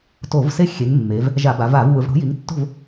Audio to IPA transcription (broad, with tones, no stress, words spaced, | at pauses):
to˧˩˧vse˦ xʲe˩˧ŋmːe˩˧v | ʒa˧˩˧ba˩˧va˧˩˧v wɯ˩˧vɽo̤˩˥ji˩˥ŋ tːo̤˥˨v